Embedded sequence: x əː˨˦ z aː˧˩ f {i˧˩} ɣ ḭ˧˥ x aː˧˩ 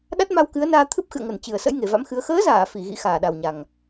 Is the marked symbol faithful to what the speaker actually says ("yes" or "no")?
yes